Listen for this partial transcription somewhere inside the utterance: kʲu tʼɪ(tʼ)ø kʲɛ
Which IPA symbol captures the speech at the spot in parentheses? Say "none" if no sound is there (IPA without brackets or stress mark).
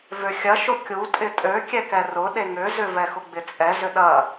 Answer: tʼ